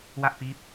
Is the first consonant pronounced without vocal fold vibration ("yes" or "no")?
no